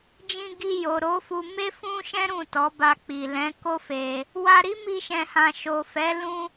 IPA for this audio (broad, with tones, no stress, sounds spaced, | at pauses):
d͡ʒ ĩ˧ ɡ i˧ j o˨ ɾ o˨˦ f u˧ m e˦ f ũ˦ ʃ ɛ̃˦ ɾ ũ˦˨ t ɔ˨˦ b a˧ k͡p i˨ l ɛ̃˨˦ k o˦ f e˧ | w a˧ ɾ i˦ m i˦ ʃ ɛ̃˧ h ã˧ ʃ o˨ f ɛ˨˦ l ũ˦